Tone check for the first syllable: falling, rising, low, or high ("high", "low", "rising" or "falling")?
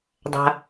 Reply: low